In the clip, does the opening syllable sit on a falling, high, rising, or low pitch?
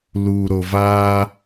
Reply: low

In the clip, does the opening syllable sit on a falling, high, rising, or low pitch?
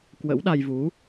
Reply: rising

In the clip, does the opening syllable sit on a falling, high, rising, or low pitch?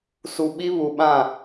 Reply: low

